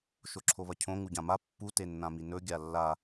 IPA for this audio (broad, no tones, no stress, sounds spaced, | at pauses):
ʃ o ǁʰ o β ɐ cʰ õ ŋ u ɟ ã m a pː u t e nː ã m i n ɵ ɡʲ a lː a